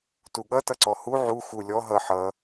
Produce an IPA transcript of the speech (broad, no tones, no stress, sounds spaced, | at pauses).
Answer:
t u ɠ ʌ t ʌ ǀ ɔ h u ʕ u x u lʲ ɔ ɦ ʌ ħ ʌ